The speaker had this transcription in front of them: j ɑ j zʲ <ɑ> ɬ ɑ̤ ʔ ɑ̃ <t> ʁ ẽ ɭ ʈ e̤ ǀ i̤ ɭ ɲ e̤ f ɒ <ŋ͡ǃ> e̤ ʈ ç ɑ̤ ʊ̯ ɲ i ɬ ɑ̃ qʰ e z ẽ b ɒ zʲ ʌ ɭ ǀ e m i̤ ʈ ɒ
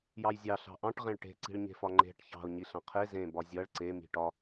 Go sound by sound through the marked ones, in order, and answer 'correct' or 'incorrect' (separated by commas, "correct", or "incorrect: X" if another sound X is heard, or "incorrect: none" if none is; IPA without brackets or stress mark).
correct, incorrect: ʈ, correct